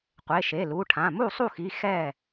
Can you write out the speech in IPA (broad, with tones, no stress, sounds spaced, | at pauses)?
qʷ e˩˧˩ ʃ e˩˧˩ l u˩˧˩ ʈʰ ã˩˧˩ m u˥˩ sˤ u˥˩ x i˩˧˩ x ɛ˥˩